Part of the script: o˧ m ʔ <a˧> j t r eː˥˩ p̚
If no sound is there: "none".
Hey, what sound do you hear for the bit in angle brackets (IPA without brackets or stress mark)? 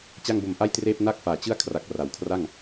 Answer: a˥˩